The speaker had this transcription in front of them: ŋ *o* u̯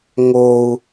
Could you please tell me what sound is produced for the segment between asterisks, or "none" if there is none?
o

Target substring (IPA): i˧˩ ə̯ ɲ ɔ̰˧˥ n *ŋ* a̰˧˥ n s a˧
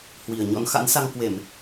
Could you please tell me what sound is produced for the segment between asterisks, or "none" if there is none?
x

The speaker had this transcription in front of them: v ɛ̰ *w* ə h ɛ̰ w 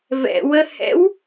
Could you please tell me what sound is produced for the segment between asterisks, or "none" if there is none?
w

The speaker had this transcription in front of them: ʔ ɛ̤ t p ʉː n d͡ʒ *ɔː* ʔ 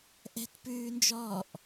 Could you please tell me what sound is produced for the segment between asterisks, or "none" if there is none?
ɔː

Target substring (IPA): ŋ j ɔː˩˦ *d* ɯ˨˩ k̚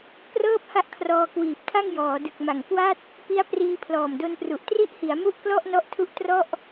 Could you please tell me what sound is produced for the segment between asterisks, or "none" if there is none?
d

